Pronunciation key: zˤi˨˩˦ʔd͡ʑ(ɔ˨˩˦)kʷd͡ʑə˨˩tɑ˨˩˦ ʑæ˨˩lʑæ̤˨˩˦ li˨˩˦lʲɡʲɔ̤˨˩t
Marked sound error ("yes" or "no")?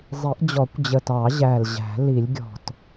no